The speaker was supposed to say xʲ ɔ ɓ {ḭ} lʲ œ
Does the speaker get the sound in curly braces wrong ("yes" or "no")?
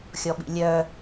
no